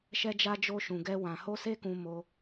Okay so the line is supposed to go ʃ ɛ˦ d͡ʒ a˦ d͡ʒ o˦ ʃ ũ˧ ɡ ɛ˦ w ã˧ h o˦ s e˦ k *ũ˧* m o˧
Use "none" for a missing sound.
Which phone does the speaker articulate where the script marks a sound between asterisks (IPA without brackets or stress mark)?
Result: ũ˧